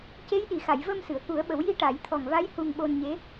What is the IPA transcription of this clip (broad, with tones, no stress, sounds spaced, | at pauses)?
c e˧˥ j ɗ i˨˩˨ x a˨˩˨ j v ə˧ m s ɨ˨˩˨ ə̯ k u˨˩˦ ə̯ ɓ ə˨˩˦ w j i˧˥ ʈ a˨˩˦ j t̪ʰ ɔ˨˩ ŋ v a˧˥ j h u˧ ŋ ɓ o˧ n ɲ e˧˥